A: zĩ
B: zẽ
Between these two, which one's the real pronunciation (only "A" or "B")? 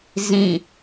A